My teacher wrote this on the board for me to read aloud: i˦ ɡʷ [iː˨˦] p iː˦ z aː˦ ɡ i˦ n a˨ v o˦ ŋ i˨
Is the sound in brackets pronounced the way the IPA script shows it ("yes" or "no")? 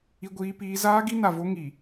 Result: no